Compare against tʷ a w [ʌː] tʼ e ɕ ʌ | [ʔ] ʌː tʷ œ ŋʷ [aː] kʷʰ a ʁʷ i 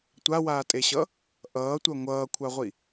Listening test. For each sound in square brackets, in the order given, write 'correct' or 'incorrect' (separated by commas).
incorrect, correct, incorrect